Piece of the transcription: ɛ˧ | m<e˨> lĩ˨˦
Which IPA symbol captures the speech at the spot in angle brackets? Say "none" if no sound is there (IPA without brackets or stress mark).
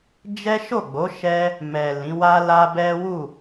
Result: ɛ˨